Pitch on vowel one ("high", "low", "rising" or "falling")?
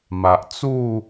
low